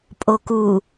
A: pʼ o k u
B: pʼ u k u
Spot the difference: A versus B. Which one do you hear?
A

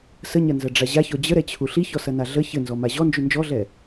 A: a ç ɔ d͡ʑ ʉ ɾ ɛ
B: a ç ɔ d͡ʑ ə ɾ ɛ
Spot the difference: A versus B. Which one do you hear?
B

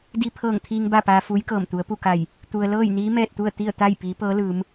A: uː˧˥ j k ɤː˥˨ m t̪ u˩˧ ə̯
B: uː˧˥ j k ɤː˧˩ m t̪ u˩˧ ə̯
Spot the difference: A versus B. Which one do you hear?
B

